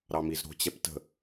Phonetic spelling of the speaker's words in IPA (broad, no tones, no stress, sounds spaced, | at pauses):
ɾ ɑ m i z ɾ o̤ t͡ɕ ɛ p t ə̤